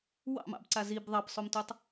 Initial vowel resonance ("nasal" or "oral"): oral